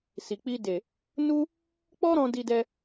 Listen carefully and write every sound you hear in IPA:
s i˨ k͡p i˧ d e˨ | n u˦ | k͡p ɔ˦ ɾ ɔ̃˧ d i˧ d ɛ˧

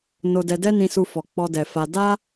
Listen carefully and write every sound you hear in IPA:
n o˧ d ɛ˧ d ɛ˦ n ĩ˧ s u˧ f ɔ˨ k͡p ɔ˧ d ɛ˨ f a˧ d a˦

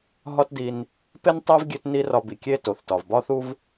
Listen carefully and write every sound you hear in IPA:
ɦ ɒ˥ t d i˧ n | p e˥ n tˤ æ˥ v ɡʲ e˥ t n i˥ r ɒ˧ b i˩ kʲ e˥ t o˩ θ t ɒ˩ v b ɒ˥ θ u˥ v

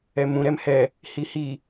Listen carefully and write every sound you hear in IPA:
ɛ m ũ ɾ ɛ m h ɛ | h i h i

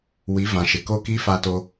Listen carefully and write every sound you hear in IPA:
w i˨˦ v ã˨ ʃ ɪ˨ k o˦ k i˦ f a˦ t o˦

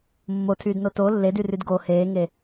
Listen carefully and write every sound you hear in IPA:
mː o tʰ yː d n o t o lː e d y r y d ɡ o h eː ŋ e

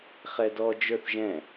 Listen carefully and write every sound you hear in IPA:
χ ɛ d ɔ d͡ʒ ə˞ θ ʒ ɛ̃

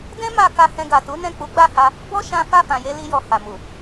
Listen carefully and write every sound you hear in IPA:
d ɛ̃˦ m a˧ k a˧ h ɛ̃˧ ɡ a˨ t u˨˦ n ɛ̃˦˨ k͡p u˨˦ ɡ͡b a˦˨ h a˧ | b ɔ˦ ʃ ã˦ f a˦˨ f ã˨ j e˧ l i˧ j ɔ˨ h a˨ m u˨

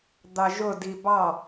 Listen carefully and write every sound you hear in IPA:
d̪ ɑ ʒ ʊ d i b ɑ

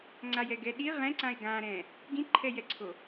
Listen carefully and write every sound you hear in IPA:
ŋ͡ǀ a j ɛ ɡ ɛ ɗ i ʁ ɛ̃ ǀ ã e̯ ɡ ã ɾ ɛ̃ | ɡ ĩ ǃʰ ɛ j ɛ ǀʰ o

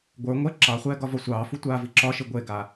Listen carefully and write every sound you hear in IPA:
ɡʷ ə˞ ŋʷ ɛ ǁ ɑ χʷ ɛː ɡ ɒ v ɒ sʷ ɑː f u tʷ aː v i ǁ ɒ ʃ i ɡʷ e ɡ a

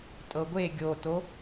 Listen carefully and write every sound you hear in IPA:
tʼ ɤ ɡʷ e ɡʲ o t o

